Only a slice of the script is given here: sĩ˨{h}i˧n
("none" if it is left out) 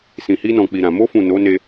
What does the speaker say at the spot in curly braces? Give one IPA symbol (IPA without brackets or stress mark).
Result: h